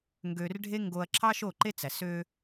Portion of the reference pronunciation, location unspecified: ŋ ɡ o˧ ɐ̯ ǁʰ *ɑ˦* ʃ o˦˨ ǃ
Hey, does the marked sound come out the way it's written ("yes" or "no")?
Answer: yes